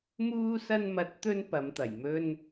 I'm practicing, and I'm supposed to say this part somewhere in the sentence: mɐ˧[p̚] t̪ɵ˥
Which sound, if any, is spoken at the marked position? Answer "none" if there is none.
t̚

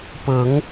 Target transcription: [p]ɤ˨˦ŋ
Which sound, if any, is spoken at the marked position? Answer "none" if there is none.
p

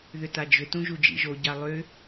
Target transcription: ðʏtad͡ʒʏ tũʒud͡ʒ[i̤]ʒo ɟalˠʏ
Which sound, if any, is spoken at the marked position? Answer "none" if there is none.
ḭ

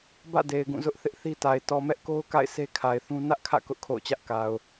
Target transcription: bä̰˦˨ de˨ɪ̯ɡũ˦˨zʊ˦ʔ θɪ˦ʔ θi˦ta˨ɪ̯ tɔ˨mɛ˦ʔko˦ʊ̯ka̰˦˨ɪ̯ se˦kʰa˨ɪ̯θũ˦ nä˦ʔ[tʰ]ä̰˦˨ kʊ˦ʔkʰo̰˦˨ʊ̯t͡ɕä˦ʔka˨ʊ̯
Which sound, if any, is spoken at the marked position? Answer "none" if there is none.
kʰ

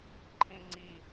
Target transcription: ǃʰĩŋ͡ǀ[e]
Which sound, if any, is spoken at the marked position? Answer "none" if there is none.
i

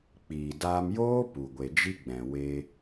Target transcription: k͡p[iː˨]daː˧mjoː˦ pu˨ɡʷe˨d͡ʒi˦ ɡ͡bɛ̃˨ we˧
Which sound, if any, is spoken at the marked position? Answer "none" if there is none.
iː˨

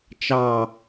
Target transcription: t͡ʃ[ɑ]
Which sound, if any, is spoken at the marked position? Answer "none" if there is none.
ɑ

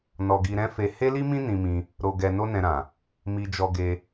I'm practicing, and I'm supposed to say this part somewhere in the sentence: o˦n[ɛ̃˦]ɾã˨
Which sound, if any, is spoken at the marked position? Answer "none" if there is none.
ɛ̃˧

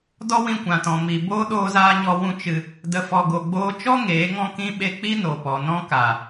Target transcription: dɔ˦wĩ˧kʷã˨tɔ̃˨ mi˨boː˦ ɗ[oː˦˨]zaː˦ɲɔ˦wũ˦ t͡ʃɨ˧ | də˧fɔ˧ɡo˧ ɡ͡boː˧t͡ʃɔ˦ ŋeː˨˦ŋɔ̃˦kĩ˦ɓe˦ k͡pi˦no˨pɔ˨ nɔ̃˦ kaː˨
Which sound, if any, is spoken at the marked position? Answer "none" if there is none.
oː˦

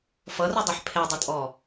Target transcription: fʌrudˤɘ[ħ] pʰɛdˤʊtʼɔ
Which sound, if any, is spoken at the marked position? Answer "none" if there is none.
ħ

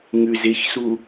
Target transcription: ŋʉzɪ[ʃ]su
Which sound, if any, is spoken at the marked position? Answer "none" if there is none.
ç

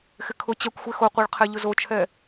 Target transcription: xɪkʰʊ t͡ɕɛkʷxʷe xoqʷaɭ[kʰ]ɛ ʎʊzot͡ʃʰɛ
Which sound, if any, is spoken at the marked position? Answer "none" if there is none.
qʰ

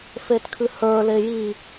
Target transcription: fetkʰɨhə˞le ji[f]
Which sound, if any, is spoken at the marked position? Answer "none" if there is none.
none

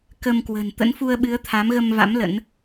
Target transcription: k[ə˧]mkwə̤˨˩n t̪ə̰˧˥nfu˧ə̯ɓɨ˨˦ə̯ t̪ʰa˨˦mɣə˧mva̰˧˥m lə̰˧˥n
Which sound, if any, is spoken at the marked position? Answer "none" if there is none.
ə˧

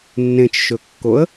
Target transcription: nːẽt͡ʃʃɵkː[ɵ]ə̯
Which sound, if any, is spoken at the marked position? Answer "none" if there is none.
o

